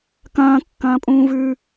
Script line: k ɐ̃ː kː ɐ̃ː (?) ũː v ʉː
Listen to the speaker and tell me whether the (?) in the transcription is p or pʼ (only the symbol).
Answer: pʼ